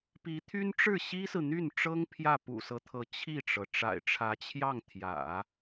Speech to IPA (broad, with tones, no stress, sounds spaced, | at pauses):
p i˧˥ t̪ʰ y˥ n ʈ͡ʂ ɻ̩˥˩ ɕ i˥ s ɹ̩˨ n̪ y˥˩ n ʈ͡ʂ ɤ˥ ŋ pʰ j ä˥˩ p ṵ˨˩ s ɤ˦ t̪ʰ ɤ˧˥ t͡ɕʰ i˥˩ ʈ͡ʂ ɤ˩ ʈ͡ʂ a̰˨˩ ɪ̯ ʈ͡ʂʰ ä˧˥ t͡ɕʰ j ɑ˥˩ ŋ t̪ʰ j ä̰˨˩˦